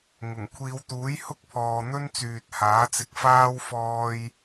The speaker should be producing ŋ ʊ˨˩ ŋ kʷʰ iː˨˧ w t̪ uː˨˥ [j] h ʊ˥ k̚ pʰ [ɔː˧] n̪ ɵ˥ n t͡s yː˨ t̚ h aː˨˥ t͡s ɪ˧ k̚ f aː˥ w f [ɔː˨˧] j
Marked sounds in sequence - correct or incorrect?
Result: correct, incorrect, incorrect

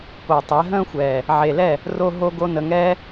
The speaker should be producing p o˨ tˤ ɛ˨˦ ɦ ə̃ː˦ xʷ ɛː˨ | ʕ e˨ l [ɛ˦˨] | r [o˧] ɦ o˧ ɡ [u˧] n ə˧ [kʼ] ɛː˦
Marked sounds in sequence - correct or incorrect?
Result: correct, correct, incorrect, incorrect

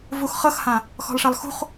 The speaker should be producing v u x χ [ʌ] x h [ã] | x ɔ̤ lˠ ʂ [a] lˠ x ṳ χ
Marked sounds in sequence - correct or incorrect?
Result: correct, correct, correct

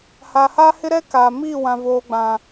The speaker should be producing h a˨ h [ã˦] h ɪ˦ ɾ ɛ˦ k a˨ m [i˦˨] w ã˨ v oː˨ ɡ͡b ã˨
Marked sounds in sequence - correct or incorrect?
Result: incorrect, correct

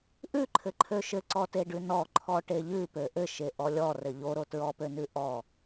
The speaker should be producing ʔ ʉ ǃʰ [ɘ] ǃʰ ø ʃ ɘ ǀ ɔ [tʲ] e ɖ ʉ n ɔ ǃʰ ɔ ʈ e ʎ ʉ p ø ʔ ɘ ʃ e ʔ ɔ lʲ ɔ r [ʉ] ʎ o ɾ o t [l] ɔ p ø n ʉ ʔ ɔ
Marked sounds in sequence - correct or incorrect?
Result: correct, incorrect, incorrect, incorrect

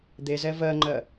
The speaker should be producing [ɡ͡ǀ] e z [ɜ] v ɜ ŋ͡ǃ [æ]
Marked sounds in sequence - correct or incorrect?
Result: incorrect, incorrect, incorrect

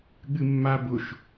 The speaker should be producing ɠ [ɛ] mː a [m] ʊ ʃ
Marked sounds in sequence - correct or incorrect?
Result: incorrect, incorrect

